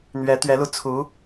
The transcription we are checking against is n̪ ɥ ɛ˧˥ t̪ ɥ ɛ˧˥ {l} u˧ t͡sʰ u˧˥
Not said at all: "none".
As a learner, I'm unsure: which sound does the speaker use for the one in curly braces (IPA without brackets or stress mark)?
l